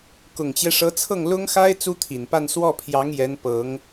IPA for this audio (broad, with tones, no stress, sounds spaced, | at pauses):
k ʊ˨˩ ŋ t͡ɕ j ɛ˦ ʂ ɤ˧˥ t͡sʰ ɤ˥˩ ŋ l ʊ˥ ŋ x a˥ ɪ̯ t͡s u˥ t̪ʰ i˨˩ n p a˥˧ n s w ɔ˥˩ pʰ j ɑ˧˥ ŋ j ɛ˧˥ n p ɤ˧˥ ŋ